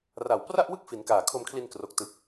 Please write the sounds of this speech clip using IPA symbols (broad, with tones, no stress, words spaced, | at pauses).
ra˨˩wpra˥˩ʔ wɯ˥˩k̚fi˩˦nkaː˨˩ kʰo˧mkʰli˧n kro˨˩k̚tɯ˨˩k̚